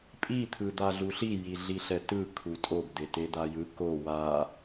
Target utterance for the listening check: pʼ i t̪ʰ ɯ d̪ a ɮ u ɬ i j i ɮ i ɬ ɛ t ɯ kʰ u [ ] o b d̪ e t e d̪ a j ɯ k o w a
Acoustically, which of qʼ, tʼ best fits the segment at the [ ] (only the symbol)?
tʼ